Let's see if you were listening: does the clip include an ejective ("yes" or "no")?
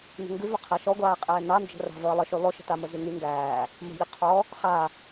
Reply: yes